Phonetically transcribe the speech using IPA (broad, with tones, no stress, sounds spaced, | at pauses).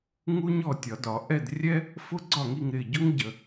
ŋ u˥ ɲ ɔ˥˨ tʲ ɒ˨˩˦ d ɒ˨˩˦ ʔ ɛ˥˨ d rʲ ɛ˥ | f ʊ˥ ɡ͡ǀ ɒ˥˨ ŋ i˥˨ ŋ ɾ ɪː˥˨ ɟ ʊ˥ ŋ ɟ ə˨˩˦